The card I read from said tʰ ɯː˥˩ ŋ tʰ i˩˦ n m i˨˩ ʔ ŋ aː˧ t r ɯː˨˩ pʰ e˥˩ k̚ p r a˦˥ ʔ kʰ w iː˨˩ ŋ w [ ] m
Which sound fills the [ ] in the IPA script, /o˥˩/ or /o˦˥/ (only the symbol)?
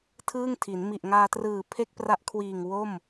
o˥˩